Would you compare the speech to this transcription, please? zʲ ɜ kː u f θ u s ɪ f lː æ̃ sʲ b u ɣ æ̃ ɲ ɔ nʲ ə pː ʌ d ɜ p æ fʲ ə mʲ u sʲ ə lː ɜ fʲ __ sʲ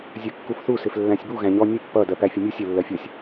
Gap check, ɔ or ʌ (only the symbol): ʌ